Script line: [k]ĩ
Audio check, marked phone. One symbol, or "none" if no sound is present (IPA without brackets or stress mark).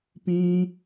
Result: p